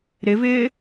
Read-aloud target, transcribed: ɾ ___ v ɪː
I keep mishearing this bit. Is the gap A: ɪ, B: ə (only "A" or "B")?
A